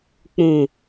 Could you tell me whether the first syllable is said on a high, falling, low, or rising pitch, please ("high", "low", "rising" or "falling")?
low